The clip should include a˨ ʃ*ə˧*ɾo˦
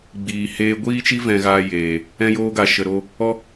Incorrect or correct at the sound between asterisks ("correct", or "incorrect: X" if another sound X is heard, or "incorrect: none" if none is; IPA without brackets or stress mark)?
correct